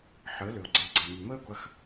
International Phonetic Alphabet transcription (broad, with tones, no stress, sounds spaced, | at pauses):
ħ əː˩˥ l ø˩ o̯ ɡ͡ǀ e˩˥ ɡ͡ǀ ɐ˩ m y˩ m əː˥ ɡʷ ɐ˧ x